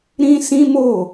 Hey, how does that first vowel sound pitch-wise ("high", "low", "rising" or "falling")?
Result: high